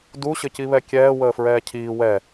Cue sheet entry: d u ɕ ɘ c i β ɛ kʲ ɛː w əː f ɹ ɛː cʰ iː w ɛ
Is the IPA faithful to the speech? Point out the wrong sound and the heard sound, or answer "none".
none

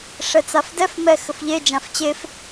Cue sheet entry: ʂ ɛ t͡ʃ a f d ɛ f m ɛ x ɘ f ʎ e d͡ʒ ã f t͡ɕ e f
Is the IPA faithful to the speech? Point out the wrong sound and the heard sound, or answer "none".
t͡ʃ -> t͡s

